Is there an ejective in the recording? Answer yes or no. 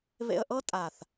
yes